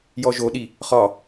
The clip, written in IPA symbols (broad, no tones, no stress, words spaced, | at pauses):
jɔʒoɗi | χɒ